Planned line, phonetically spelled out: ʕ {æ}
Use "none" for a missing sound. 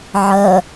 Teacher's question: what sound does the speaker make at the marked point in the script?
ɜ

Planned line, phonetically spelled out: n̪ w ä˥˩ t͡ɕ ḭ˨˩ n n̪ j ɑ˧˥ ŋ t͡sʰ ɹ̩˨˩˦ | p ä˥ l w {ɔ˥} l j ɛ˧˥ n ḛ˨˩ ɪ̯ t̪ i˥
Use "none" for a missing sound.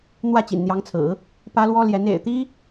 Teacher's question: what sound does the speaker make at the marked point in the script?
ɔ˥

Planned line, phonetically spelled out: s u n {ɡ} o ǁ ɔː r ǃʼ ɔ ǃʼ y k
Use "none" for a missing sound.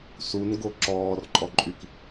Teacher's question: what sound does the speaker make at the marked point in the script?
ɡ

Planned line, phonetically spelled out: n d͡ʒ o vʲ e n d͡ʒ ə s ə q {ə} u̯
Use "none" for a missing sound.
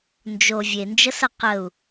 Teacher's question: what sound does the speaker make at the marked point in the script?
ə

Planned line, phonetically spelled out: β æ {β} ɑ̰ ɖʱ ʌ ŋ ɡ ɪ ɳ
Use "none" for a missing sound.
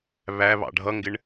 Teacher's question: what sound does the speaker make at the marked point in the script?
β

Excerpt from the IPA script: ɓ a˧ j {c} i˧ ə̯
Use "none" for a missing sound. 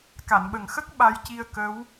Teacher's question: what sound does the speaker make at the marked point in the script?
c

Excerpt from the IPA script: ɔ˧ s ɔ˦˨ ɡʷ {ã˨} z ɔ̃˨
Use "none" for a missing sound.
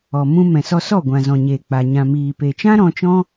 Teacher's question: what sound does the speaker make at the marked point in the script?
ã˨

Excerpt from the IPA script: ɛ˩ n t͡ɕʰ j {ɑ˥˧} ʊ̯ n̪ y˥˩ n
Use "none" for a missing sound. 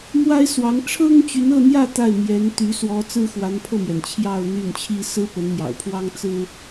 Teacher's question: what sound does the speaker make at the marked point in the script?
ɑ˥˧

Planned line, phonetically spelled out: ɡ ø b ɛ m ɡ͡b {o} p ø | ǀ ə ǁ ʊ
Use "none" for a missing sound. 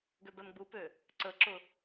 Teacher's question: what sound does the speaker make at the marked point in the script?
u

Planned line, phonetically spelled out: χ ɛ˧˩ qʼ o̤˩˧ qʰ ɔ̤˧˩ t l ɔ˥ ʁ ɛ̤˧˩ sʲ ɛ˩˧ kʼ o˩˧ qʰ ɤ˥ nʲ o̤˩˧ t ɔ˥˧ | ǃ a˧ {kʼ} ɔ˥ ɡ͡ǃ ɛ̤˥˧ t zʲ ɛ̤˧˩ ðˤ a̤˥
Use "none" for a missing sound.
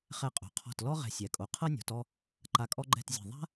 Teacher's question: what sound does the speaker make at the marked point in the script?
kʼ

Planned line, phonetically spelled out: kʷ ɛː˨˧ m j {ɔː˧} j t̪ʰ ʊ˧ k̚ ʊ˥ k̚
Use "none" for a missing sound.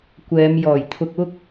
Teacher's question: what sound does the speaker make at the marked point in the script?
ɔː˨˩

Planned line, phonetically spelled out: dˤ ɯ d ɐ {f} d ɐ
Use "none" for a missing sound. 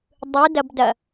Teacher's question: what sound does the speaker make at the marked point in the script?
b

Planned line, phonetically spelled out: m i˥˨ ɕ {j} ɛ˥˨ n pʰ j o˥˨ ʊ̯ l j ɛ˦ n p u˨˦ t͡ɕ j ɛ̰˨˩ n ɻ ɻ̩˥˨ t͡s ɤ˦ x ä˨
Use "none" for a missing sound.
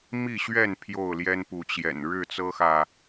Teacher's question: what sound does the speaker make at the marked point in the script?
ɥ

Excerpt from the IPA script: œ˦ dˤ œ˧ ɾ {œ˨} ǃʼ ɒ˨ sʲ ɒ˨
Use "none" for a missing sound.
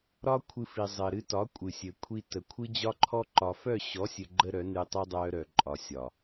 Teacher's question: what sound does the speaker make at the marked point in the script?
œ˨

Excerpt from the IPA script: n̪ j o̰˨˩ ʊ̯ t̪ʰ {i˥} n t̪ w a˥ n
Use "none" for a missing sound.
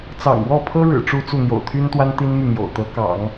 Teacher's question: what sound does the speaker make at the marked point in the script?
y˥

